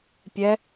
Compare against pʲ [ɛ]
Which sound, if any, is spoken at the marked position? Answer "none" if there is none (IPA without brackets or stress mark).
ɛ